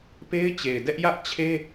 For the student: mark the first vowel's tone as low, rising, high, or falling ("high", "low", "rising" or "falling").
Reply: high